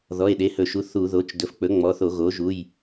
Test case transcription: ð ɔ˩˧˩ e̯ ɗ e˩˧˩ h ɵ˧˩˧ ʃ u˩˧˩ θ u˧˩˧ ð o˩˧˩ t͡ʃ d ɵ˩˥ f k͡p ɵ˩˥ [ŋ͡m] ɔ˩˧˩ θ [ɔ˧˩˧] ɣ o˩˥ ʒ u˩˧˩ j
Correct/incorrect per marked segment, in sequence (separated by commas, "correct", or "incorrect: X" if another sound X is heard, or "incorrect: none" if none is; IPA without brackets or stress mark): correct, incorrect: o˧˩˧